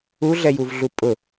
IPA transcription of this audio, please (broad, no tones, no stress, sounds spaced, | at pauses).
u ɮ ɛ j u v ɮ u pʼ ʊ